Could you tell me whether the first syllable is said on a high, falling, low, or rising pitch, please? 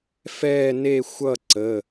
falling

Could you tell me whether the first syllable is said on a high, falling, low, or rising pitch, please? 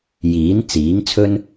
rising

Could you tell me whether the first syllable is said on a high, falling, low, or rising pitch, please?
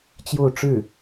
falling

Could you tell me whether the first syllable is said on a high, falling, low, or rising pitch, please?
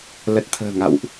low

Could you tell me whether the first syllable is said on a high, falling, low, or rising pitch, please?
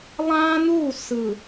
high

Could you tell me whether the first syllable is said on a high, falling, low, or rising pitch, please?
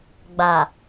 low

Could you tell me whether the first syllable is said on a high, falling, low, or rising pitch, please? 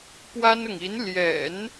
high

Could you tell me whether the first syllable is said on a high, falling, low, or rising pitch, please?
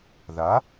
rising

